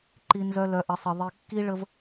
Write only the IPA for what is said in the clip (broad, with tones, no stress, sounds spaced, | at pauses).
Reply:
ǃ i˨ n z œ˨ l œ˨ ʔ ə˨ sˤ ə˨ ðˤ i˨ kː i˦ ɭ ə˦ v